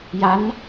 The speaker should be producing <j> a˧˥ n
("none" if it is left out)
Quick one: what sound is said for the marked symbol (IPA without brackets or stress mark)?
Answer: j